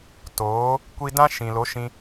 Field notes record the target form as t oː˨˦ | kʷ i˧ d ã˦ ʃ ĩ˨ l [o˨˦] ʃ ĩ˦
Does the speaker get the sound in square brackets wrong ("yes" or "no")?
no